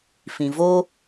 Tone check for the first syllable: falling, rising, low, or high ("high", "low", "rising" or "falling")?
low